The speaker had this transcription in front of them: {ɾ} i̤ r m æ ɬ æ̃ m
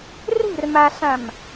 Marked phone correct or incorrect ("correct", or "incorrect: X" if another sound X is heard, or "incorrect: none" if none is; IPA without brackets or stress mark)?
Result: incorrect: r